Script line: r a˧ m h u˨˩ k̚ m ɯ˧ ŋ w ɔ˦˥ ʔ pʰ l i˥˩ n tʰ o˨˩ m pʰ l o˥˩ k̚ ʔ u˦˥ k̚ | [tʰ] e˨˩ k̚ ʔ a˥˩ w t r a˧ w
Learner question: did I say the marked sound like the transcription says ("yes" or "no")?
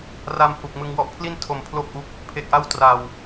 no